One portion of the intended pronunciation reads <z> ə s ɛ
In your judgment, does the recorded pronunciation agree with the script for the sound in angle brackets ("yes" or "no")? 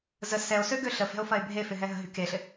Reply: yes